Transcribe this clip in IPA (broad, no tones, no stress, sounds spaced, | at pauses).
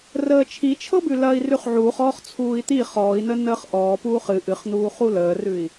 r əː t͡ʃʰ i t͡ʃʰ ɤ b ʉ l ɐː i̯ r ʉ χ ʕ uː χ ɔː χ t͡sʰ uː i̯ t̪ i χ ɔː i̯ n ə n əː χ ʔ ɔː p uː χ ɨ ʔ ɨ χ n uː χ u l əː r ʉ i̯